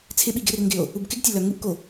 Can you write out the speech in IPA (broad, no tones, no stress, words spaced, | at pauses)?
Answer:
t͡sʰɪɓi ɡɪrŋɡɪo̯ | ubkɪɡtʲɐ lœŋuʔko